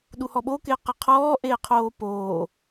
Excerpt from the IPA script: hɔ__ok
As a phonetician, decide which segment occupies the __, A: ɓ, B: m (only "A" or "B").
A